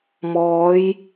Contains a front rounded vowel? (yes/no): no